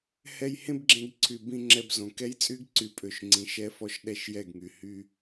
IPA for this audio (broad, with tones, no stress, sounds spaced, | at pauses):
h ɛ˧ j h ẽ˦ b ɡ͡ǁ ẽ˧ ɡ ǀʰ y˨ b ĩ˧ ŋ͡ǁ ɛ˧ b z õ˨ k ɛ˦ j t͡sʼ y˦ ɡ ǀ y˦˨ pʼ ø˦˨ ʃ ŋ͡ǀ ĩ˨˦ ʃ ɛ˦ f ɔ˦ ʃ ɗ ɛ˦˨ ʃ j ɛ˦˨ ɡ ŋ y˨ h y˧